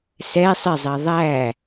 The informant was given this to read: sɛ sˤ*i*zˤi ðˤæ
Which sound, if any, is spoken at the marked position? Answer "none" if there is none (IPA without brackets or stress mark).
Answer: ɪ